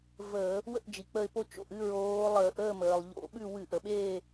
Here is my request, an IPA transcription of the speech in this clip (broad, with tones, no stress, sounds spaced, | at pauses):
v əː˧˩˧ | w ə̰˥˨ ʔ d͡ʒ i˩ k͡p ə˧˩ ɪ̯ p o˦ t͡ʃ o̰˧˩ ʔ ɨ˥˨ ɹ oː˨˦ lˠ əː˧˩˧ ʔ əː˥˨ m əː˩ lˠ ʎ o̰˧˩˧ ɓ ʉ˥˨ w ɨ˧˩˧ ʔ ə˩ ɓ eː˥˨